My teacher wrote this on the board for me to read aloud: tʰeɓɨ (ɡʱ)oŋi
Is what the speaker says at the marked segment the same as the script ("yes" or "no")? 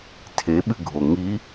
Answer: yes